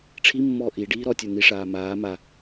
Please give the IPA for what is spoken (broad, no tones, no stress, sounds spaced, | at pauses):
ʈ͡ʂʰ i mː ɔː ʔ i ɖ iː ɾ ɔ tʲ ə˞ n i ʂ aː m aː m a